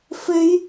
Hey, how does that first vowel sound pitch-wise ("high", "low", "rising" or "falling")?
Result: high